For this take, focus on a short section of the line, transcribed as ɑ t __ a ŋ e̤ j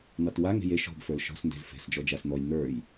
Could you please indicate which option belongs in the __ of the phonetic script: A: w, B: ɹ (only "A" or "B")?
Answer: A